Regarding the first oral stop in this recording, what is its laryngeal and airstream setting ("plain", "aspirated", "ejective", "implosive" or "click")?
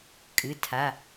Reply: ejective